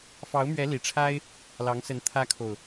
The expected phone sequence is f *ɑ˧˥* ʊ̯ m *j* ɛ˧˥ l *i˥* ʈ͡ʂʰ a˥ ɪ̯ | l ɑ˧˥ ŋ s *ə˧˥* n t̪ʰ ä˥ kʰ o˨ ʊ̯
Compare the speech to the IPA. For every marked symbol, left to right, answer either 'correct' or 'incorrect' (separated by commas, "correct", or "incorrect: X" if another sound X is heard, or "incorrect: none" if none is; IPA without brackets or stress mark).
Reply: correct, incorrect: ɥ, incorrect: i˨˩, correct